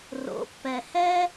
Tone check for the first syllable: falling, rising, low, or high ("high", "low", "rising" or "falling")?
rising